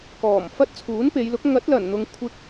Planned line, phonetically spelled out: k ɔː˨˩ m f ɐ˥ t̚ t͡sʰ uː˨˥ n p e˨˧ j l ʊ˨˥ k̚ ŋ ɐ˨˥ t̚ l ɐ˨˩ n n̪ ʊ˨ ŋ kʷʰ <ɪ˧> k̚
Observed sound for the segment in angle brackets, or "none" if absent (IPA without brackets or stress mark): ɪ˧